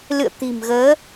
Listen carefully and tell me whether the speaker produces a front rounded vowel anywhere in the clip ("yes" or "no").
no